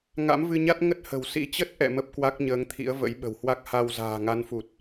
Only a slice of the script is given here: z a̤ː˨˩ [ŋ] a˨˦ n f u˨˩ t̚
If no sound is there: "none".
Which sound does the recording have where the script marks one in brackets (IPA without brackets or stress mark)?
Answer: ŋ